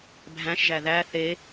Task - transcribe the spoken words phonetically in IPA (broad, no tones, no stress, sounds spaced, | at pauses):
bʱ æ̃ ʃ ʒ æ ð æ θ e